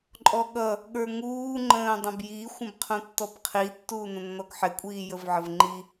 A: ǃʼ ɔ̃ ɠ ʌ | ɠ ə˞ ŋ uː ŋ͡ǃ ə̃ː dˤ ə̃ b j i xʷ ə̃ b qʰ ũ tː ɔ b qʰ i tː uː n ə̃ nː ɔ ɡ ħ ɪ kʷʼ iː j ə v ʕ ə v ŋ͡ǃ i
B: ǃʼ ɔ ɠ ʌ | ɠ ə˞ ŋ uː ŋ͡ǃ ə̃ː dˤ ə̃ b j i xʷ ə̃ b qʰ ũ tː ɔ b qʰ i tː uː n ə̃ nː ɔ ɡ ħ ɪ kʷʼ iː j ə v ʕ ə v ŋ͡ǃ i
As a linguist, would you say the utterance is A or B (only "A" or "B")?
B